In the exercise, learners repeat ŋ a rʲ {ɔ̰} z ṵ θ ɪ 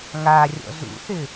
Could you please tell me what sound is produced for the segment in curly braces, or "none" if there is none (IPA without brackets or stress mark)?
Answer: ɔ̰